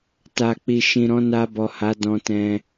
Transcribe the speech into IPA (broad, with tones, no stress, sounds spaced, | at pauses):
t a˨ k͡p i˨ ʃ ĩ˨ ɾ ɔ̃˨˦ n a˧ b ɔ˨ h a˨˦ d ɔ̃˧ t ɛ̃˧